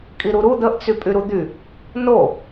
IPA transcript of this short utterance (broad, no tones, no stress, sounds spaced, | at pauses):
kʼ i ɾ u ɾ u d̪ ə ʔ t͡s y pʼ y ɾ u d̪ y | n o